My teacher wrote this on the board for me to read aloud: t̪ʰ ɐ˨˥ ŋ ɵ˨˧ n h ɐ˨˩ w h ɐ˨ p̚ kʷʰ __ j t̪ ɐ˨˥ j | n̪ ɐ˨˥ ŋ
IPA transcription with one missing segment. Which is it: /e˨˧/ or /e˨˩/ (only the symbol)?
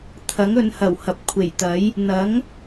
e˨˩